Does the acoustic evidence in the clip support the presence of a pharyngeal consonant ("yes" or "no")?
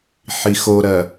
yes